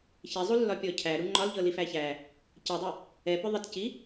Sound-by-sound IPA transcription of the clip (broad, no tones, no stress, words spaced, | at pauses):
çɛzˤulːɒpʲɔ cʰæɾu ŋ͡ǃɒlʎɤlifæ çæ | cɛdˤu | ɛpʏ ðˤətci